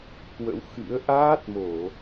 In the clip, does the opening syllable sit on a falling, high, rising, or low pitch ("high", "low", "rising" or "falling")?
rising